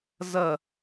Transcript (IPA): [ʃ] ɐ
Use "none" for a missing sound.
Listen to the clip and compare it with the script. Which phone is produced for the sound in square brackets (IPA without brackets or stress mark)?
z